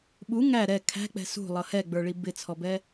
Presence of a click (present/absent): absent